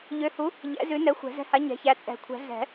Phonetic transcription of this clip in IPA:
ʎ ø˨˥ h u˨˥ | ʎ ɛ̰˨˥ z ʉ˨˥ n ɛ˨˥ xʷ ɛ̤˨˩˦ z ɛ̤˨˥ h a˨˥ ɲ ɛ̤˨˥ ç æ˨˥ t͡sʼ ɛ̤˨˩˦ kʷʰ ɛ̤˨˩˦ ɮ ɛ̤˨˩˦

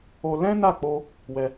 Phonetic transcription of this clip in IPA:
o˧ l ɛ̃˦ n a˦˨ k͡p o˧ | w ɛ˧

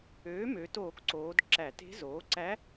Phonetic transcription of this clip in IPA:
øː˩˥ m ø˩˧ t oː˧˩˧ k ǀ oː˩˧ d ǁ æ˧˩˧ t e̤˧˥ z oː˩˥ ǀ æ˧˥

